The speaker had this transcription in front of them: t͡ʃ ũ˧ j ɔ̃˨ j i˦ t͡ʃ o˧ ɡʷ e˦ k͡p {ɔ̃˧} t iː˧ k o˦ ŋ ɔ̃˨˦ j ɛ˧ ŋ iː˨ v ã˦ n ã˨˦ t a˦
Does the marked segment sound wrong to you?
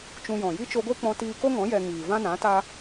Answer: no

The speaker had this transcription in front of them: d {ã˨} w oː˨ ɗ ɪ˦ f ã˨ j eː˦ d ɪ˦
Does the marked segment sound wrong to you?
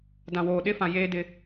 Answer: no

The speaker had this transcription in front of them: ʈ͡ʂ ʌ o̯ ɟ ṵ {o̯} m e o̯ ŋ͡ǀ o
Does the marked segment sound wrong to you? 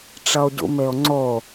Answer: yes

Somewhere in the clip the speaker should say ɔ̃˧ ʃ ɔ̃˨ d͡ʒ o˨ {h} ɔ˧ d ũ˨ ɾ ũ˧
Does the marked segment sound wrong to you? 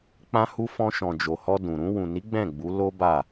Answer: no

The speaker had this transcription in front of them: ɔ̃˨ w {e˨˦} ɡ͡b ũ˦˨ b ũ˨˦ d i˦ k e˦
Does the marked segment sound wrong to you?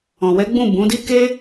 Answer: yes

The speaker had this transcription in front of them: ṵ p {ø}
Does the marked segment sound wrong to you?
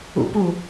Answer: yes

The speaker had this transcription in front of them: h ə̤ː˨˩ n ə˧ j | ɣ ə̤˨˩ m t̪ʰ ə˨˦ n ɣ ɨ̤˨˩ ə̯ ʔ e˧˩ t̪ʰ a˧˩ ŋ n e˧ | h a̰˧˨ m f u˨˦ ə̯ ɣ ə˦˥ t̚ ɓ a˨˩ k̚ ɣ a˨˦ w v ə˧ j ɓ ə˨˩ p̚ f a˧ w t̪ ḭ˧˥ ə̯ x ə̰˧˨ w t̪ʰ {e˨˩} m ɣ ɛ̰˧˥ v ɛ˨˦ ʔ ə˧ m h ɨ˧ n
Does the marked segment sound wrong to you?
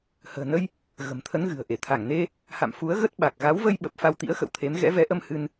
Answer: yes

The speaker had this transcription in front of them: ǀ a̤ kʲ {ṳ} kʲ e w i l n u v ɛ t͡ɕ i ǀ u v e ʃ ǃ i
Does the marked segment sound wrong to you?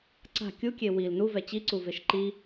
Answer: yes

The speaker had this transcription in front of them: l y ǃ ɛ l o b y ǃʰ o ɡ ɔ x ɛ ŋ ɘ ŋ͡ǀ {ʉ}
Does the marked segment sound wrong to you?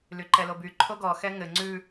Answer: no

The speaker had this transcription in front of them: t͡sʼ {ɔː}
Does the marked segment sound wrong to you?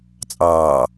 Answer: yes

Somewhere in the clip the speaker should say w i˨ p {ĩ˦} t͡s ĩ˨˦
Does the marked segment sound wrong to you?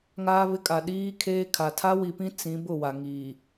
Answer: no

